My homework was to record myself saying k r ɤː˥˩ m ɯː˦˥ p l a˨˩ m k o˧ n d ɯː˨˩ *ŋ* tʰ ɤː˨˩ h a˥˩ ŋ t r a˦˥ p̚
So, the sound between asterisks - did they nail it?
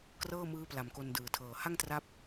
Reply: no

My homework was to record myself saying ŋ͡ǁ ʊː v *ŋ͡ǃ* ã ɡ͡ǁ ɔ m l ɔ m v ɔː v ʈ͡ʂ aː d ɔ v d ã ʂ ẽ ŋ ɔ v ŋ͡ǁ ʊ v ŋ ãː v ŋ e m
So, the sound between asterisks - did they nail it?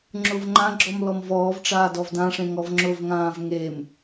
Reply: yes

